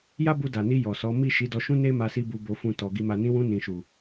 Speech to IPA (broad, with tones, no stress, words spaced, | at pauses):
ja˦bu˧da˨ni˧ jɔ˨sɔ˨˦ mi˦˨ ʃi˨˦dɔ˧ʃũ˦ ne˦ma˧si˧ bu˨bo˨fũ˨ tɔ˨ ɡi˨ma˨nĩ˨˦wũ˧ nĩ˨ʃu˨